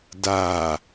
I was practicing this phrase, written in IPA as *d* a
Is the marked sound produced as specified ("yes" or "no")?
yes